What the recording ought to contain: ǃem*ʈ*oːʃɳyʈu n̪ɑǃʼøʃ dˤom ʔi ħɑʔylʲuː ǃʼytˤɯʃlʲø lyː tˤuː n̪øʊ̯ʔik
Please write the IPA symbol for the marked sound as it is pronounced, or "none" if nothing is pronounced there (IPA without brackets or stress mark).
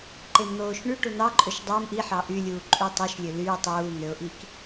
n̪